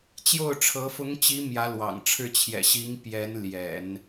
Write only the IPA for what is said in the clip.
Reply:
t͡ɕ j o˥˩ ʊ̯ ʈ͡ʂʰ ɤ˧˥ f ʊ˧˥ ŋ t͡ɕ i˧˥ m j ä˧˥ l w ɑ̰˨˩ ŋ ʈ͡ʂʰ ɻ̩˥˩ t͡ɕʰ j ɛ̰˨˩ ɕ i˧˥ ŋ p j ɛ˧˥ n l j ɛ̰˨˩˦ n

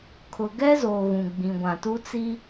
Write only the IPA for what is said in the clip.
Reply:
kʰ ʊ˨ ɡ ɛ˦ z o˨ ɣ ũ˨ ɡ͡b ĩ˨ ɡʷ ã˨ t u˦ t͡s i˦

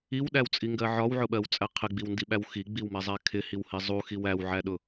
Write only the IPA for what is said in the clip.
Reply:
i w ɗ æ w t͡sʼ i ŋ ɡ ɜ ʕ ɒ w ʕ ʊ ɓ ɜ w t͡sʼ æ qʰ ɪ ɡ͡b i w n d i ɓ æ w x i ɡ͡b i w m æ zˤ æ kʰ ɪ h i w h i zˤ u x i w æ w ʕ æ ɗ ʊ

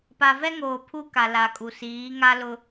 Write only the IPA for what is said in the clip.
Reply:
p a˨ v ɛ˦ ŋ oː˨ pʰ u˦ k a˨ l a˨ kʼ u˨ s iː˨˦ ŋ a˦ l ʊ˦

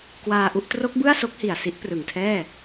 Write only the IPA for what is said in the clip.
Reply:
k w aː˧ ʔ u˦˥ ʔ t r o˦˥ k̚ b ɯ˥˩ a̯ s o˦˥ k̚ h i˨˩ a̯ s i˦˥ ʔ p r ɯ˨˩ ŋ tʰ ɛː˥˩

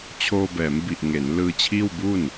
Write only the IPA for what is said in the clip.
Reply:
t͡ɕʰ oː˧ b ɛː˩˦ m b i˨˩ ʔ ŋ e˩˦ n l ɯː˧ t͡ɕʰ iː˥˩ w b u˥˩ n

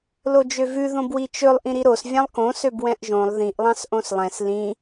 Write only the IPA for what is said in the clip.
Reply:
l o d͡ʒ ø v ʉ ð õ b w i t͡ʃ ɵ lˠ ʔ ĩ ɾ i ɾ o s vʲ ɑ̃ lˠ k õ s ø b w ɛ̃ ʔ ʒ õ lˠ ð ĩ ʔ lˠ ɑ̃ s ʔ õ s lˠ ɛ̃ s l ĩ

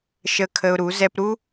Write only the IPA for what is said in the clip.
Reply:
ʃ ə˧ kʰ ə˧ ʊ̯ ɾ u˨˦ z ɛ˧ p ɾ u˦

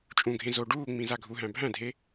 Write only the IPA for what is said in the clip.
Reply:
t͡ʃʼ ũ ɡʱ ẽ z o ɖ uː ŋ͡m ĩ z a ɡʱ u ɦ æ̃ bʱ æ̃ dʱ e

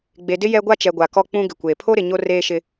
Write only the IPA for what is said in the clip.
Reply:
ɡ͡b e˨ d ɪ˦ j ɛ˦ ɡʷ a˦ t͡ʃ ɛ˨ ɡʷ a˨ k ɔ˦ k͡p ũ˦ ɡ ɪ˨ kʷ eː˨ pʰ o˦ ɾ ɪ˨ ɲ o˦ r eː˦ ʃ ɪ˦

